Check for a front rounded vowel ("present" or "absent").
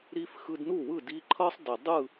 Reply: absent